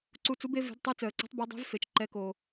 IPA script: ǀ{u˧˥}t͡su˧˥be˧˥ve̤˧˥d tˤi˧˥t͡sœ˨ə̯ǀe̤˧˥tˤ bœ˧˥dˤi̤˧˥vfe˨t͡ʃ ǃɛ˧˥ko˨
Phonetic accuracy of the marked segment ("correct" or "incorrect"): correct